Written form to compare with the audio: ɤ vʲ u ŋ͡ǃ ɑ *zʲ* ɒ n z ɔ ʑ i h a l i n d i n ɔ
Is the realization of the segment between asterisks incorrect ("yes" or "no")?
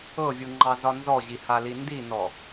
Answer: yes